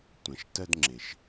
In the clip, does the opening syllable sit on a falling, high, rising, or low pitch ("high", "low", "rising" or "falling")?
low